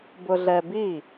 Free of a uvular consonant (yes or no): yes